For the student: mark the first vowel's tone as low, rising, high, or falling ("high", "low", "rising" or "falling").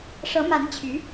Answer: rising